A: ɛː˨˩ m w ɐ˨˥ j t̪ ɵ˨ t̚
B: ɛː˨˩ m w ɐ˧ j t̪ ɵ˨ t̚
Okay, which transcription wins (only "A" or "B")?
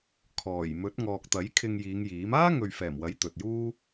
A